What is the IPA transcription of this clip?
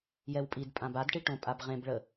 j ɛ w pʼ i d pʼ ã b a d ʈ i ʈ õ pʼ a b ʁ ẽ b ɭ ə

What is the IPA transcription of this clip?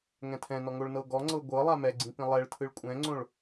ŋ ɛ̃ tʰ ɛ̃ n ɔ ŋ o ɭ n ɤ ɡ ɔ ŋ͡ǀ ɤ ɡʷ ɤ lˠ a m ɛ ɡ͡ǀ ĩ p ĩ lˠ ɛ ɭ tʰ ɯ ɭ kʷʼ ɛ̃ ŋ͡ǀ õ ɭ

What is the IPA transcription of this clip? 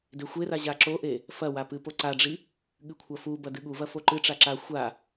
d e xʷ e r a ʑ a ǁ o ʔ e | f ɐ w a p ɨ p o ǀ a ɖ͡ʐ i | ɠ ɨ kʷʰ ɐ f u b ɐ d ɨ ɠ u v ɐ f o ǃ ɨ ʈ͡ʂ a ǁ a xʷ a

